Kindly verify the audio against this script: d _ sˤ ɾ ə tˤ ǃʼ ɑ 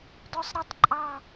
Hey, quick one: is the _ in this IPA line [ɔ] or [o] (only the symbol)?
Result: ɔ